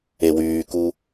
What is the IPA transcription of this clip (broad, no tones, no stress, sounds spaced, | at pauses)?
e w yː k u